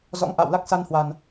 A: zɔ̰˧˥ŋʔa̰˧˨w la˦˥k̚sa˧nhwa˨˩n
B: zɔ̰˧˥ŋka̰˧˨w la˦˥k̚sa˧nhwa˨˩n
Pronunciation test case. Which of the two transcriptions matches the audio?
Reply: A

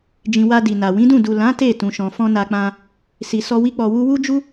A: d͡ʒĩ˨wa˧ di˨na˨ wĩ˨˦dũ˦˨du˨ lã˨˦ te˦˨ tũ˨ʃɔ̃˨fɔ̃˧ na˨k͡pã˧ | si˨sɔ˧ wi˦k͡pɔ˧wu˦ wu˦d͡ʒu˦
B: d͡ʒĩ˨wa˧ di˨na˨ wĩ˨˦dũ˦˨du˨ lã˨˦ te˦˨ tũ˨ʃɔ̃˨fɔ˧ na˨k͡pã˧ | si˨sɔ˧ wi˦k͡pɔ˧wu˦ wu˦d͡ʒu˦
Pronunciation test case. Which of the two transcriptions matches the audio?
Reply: A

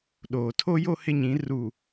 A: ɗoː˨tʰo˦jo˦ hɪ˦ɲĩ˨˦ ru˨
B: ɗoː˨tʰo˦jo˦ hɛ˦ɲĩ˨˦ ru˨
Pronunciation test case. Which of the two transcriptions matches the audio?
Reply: A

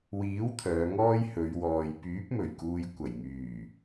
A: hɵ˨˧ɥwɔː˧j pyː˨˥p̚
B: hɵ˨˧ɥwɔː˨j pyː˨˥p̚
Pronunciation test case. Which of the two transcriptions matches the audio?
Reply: B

